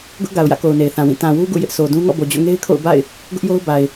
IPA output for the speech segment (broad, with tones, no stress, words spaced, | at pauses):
ɡʊ˦ʔɡa˨ʊ̯jä̰˦˨ko˨ʊ̯ ne˨ɪ̯θã˨wĩ˦˨ tã˨wu˦ ɡṵ˦˨jɪ˦ʔsʰo˨dũ˦ ŋɔ̰˦˨bo˨d͡ʑo̰˦˨ŋe˦ɪ̯ kʰo̰˦˨ʊ̯ba̰˦˨ɪ̯ | ɡʊ˦ʔjo˦ʊ̯ba˨ɪ̯